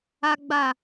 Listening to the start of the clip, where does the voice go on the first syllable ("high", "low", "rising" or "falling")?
high